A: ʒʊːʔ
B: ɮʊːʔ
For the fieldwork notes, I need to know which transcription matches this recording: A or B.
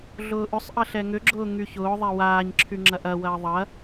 B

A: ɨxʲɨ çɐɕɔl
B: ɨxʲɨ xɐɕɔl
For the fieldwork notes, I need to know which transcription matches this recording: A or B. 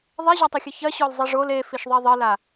A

